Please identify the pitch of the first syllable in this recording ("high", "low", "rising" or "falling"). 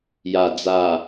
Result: low